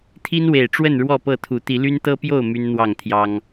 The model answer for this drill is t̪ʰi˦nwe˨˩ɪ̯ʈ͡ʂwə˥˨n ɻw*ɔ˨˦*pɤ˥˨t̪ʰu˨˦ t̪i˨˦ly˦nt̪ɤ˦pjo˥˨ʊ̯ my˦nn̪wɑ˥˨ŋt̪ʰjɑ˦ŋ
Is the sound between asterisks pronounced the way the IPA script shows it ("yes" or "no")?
no